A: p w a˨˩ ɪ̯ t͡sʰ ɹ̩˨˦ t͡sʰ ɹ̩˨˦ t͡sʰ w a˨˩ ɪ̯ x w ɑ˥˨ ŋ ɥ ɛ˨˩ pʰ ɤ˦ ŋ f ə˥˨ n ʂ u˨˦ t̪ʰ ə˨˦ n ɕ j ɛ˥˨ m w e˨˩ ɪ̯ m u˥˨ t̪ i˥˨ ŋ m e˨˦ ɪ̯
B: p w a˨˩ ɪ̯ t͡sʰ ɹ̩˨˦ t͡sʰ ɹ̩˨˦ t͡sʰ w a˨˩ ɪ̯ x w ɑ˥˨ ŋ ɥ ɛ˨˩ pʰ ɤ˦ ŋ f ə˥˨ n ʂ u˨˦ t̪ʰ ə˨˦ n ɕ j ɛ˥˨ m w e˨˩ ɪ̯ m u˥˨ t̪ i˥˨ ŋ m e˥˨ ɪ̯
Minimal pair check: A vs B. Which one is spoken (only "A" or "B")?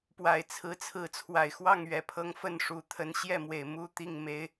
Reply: A